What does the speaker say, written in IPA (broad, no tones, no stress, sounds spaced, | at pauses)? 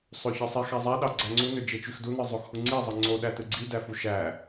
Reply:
sˤ ø ç ɯ sˤ e x æ zˤ æ ɗ ɑ ɡ͡ǀ æ ŋ͡ǀ u n ø d͡ʒ e t͡ʃ y x d u n ɯ zˤ o x h u ŋ͡ǀ i zˤ ɯ ŋ͡ǀ o ɗ æ t ɯ ɡ͡ǀ i d æ f u ʃ æ